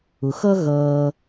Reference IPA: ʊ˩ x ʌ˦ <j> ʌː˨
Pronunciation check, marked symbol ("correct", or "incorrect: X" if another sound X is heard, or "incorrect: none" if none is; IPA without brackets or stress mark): incorrect: ɣ